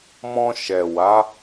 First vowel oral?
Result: no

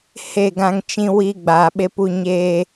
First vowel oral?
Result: yes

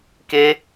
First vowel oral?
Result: yes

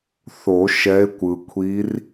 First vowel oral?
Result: yes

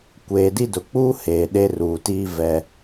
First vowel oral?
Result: yes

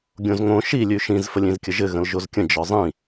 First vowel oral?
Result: no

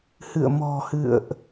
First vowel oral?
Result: yes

